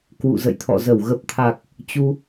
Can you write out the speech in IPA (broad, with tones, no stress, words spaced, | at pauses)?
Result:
kwṵ˧˨zə̰˧˨jt̪ʰɔ̰˧˨zə˧˩w ɣə˨˩p̚t̪ʰa˨˩k̚ | t͡ɕu˧